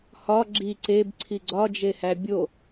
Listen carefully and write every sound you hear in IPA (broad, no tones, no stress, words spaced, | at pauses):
hɒ ɡ͡ǁi ǀebǀʰi ɡ͡ǀɒd͡ʒehæ bʲo